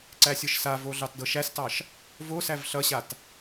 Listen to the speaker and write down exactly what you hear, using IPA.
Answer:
ǀ æ sʲ ɤ ʃ s a v o ɮ ɑ t d ɤ ʃ æ s t ɑ ʃ | v o s æ v ɬ ʌ ɕ a t

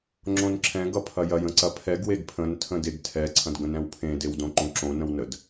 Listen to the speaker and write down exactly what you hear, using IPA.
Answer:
ŋ͡ǁ õ n ǁʰ ɛ̃ ɡ ʌ pʰ ɐ j ɐ j ə̃ ǀ ɐ pʰ ɛ ɡ w e ɡ pʰ ə̃ n tʰ ə̃ d e ɡ tʰ ɛ ǀʰ ɐ̃ d ɡ ə̃ n ɛ̃ w pʰ ẽ d e w d õ ǃ õ ǁ õ n ə̃ w n ə d

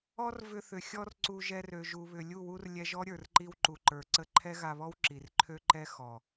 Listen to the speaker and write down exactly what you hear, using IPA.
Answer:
ɔ˦ r v ʏ˧ θ ʏ˨ xʲ ɔ˦ r ǀ u˧ ʒ ɛ˧ r ø˨ ʒ u˨ β ʏ˨ lʲ u˦˨ w u˦ r lʲ ɛ˧ ʒ ɔ˦ ɾʲ ə˞˨ r ǃ i˧ w ǃ u˨ ǃ ə˞˨ ǀ ə˧ ǃʰ ɛ˦ ɣ a˧ β ɔ˦ w ǁ i˨ r ǃʰ ø˦ ǃ ɛ˦ x ɔ˨

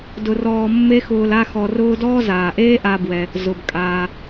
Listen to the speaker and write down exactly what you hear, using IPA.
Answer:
d ʊ˧ r ɔː˧ mː e˥ x ʊː˧ l a˥ x ɔ˧ r ʊː˥ d ɔː˥ z aː˩ ʔ eː˥ ʔ a˧ b w ɛ˩ | z ʊ˩ b kʼ aː˩

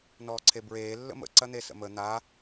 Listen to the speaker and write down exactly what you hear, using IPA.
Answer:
n ɔː ǀʰ e b ɹ eː lː ə̰ m ə̰ ǀ ɐ n̪ e s ə̰ m ə n̪ a

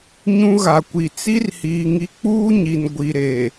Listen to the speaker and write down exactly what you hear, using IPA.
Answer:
ɲ ũ˦ ɣ a˨ kʷ i˨ t͡s i˦ r h iː˨ ŋ i˦ k͡p uː˦ ɲ i˨ n ɡʷ i˨ ɾ e˨

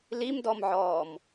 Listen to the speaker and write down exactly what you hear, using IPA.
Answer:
l i m d ɔ m ʕ ɔː m

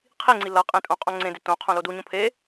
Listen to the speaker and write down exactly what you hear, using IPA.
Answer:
qʰ i ŋ͡ǀ i l ʌ qʼ ẽ tʼ õ qʼ õ ŋ͡ǀ ẽ d ɪ t õ qʰ õ l o d u ɲ õ pʰ e

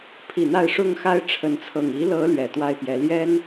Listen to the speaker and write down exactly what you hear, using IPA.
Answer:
pʰ i˨˩ n̪ a˥˨ ɪ̯ ʂ ʊ˥˨ ŋ x a˦ ɪ̯ ʈ͡ʂʰ ə˨˦ n t͡sʰ ɤ˨˩ ŋ i˨˦ l ɤ˨˦ l ɥ ɛ˨˩ t̪ w a˦ ɪ̯ p j ɛ˨˦ l j ɛ˦ n

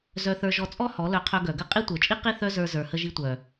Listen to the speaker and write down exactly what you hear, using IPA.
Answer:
z œ˧ θ ə˞˧ ʒ ɔ˧ t͡sʼ ɔ˦ h ɔ˨˦ l œ˧ qʰ œ˧ ɡ œ˨ ɡ ə˦ qʼ i˦ tʷ ə˞˨ t͡ʃʼ i˦ q i˦ θ œ˦ z ə˞˧ z ə˞˨ h ə˧ ʒ i˧ tʷ œ˨

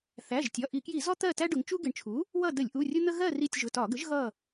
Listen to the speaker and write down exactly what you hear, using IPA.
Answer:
θ æ˩˧˩ ʒ tʲ ɒ˩˧˩ ʔ i˧˩˧ k j i˧˩˧ z ɔ˦ t̪ ɜ˦˨ t æ˦ ɖ ʊ˩˧ ŋ t͡ʃ u˦ ɡ ɪ˩˧ ɳ t͡ʃʰ u˩˥ | w ʌ˦˨ d ə˧˩˧ lʲ ʔ u˩˧˩ rʲ ʊ˦ n̪ ə˦ ɣ ɜ˦˨ r i˦˨ tʲ ʒ ʊ˩˧˩ t ɒ˧˩˧ ɡ ə˩˥ ʒ ɣ ʌ˦˨

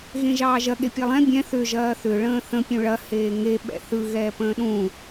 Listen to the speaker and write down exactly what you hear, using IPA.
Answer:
ɣ ẽ ʒ ɑː ʒ ɐ ɠ e pʲ e lˠ ɛ̃ bʲ ɛ̃ θ ʏ ʒ ɐː θ ʏ ɭ ə̃ː θ ə̃ pʲ ũ ɭ ɐ h eː ŋ e ɓ ɛ̰ θ ɯ ɣ ɛː p ə̃ː ɗ ũ

